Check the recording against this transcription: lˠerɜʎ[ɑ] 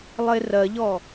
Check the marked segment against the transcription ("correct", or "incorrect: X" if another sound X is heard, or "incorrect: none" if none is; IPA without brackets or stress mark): incorrect: ɔ